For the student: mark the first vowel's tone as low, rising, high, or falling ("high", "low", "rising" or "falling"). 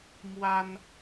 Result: high